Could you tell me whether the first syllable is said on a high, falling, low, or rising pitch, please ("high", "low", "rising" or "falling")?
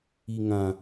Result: low